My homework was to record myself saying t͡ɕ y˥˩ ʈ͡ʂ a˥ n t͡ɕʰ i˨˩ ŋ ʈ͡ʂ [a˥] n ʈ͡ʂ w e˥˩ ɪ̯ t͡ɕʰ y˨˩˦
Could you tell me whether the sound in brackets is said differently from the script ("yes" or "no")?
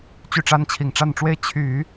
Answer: yes